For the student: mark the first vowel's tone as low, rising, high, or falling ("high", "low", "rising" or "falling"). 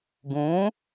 rising